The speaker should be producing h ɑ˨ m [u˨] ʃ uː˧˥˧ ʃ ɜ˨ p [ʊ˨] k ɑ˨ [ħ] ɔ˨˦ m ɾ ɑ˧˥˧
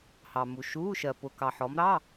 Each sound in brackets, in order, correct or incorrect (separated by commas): correct, correct, correct